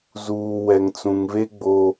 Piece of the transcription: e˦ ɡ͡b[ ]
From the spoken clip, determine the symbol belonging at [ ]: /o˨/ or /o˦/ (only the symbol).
o˦